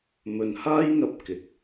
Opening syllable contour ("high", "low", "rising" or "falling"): low